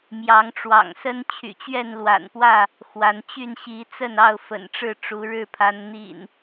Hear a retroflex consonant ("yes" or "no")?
yes